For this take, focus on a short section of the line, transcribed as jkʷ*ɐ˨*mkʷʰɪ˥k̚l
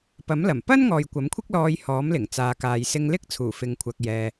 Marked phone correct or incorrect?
incorrect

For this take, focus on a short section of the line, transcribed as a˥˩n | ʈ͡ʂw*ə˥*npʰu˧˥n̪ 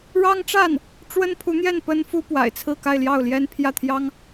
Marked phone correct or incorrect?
correct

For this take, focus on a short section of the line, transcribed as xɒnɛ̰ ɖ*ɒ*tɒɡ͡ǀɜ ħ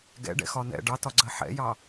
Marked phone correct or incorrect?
incorrect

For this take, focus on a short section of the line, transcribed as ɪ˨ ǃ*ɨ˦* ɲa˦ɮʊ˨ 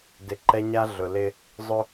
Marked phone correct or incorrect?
incorrect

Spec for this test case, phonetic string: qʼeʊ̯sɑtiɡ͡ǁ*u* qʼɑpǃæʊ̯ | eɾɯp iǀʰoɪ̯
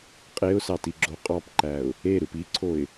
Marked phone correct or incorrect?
incorrect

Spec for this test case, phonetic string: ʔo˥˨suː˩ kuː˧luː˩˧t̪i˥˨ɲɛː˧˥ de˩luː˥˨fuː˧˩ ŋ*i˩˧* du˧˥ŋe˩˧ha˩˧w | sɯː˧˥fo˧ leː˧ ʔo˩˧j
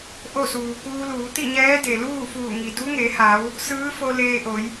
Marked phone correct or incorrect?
incorrect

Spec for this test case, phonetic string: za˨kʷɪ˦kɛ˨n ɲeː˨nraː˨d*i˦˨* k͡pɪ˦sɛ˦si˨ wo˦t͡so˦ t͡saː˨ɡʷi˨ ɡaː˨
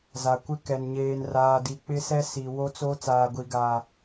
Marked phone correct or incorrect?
incorrect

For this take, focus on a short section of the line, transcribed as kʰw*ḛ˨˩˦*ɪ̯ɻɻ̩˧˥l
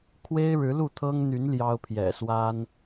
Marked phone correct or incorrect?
incorrect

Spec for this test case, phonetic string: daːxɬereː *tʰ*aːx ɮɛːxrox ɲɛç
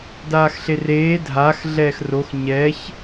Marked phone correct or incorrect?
incorrect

